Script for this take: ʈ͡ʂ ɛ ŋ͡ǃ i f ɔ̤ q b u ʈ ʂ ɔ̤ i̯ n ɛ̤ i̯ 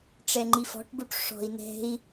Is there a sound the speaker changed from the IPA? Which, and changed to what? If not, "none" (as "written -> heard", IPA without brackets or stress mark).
q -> ʈ